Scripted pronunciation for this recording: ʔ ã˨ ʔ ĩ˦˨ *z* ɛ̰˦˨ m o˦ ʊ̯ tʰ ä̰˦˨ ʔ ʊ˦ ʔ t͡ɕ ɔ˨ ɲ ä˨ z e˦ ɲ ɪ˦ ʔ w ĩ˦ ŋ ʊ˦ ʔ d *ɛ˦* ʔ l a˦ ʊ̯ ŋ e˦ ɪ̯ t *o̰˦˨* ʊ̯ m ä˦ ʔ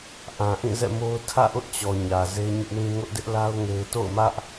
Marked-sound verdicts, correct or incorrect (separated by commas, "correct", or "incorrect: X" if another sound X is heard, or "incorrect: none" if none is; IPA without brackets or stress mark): correct, incorrect: ɪ˦, correct